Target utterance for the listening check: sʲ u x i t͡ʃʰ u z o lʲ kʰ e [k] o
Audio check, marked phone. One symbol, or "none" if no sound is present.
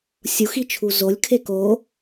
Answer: k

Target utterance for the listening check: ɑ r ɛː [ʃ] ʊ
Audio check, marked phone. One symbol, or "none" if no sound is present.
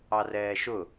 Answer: ʃ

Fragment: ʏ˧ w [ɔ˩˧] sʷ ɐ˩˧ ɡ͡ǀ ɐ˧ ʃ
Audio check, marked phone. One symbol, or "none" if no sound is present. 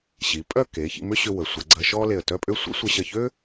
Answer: ə˩˧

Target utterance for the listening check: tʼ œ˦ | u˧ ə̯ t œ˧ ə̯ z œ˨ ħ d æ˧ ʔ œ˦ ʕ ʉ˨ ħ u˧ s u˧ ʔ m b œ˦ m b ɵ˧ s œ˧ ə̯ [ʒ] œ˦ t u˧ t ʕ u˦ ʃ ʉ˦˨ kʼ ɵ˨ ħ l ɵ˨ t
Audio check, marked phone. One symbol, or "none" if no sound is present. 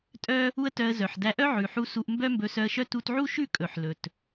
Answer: ʃ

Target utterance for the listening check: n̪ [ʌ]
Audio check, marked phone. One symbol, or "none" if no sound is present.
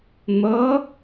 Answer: ʌ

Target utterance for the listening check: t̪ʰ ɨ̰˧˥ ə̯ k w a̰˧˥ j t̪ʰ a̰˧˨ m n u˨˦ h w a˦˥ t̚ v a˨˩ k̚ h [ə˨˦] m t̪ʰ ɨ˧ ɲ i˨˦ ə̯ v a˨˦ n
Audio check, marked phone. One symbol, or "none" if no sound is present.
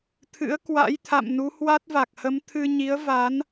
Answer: ə˨˦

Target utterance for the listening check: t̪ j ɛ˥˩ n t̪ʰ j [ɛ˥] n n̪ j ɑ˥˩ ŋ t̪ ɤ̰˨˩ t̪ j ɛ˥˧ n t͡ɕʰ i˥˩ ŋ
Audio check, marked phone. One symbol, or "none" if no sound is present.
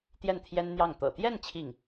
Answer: ɛ˥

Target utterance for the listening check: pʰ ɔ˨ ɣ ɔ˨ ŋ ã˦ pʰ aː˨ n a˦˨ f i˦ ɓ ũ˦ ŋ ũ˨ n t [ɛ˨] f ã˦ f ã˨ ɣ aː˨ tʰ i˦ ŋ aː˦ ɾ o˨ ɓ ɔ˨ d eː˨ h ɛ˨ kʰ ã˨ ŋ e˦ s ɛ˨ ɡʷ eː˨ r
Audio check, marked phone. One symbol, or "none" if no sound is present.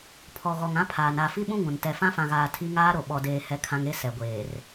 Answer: ɛ˨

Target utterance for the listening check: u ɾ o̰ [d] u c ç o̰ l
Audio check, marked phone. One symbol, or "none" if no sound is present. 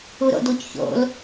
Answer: d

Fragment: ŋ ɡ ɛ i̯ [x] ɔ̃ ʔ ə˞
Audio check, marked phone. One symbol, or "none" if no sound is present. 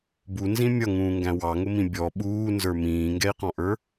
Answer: q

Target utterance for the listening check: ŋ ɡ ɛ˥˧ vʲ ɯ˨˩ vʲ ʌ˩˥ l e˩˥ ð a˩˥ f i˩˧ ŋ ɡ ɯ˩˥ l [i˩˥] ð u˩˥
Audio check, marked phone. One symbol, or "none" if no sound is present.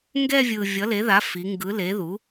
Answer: e˩˥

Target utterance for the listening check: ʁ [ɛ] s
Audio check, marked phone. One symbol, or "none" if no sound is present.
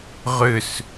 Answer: ʏ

